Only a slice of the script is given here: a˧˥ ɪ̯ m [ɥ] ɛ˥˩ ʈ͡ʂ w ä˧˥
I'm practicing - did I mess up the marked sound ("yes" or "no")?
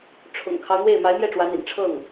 yes